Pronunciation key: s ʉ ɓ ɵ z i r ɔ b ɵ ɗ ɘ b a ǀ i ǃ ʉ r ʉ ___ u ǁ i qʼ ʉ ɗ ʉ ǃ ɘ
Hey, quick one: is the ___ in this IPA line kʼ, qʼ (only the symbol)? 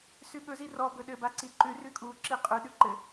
kʼ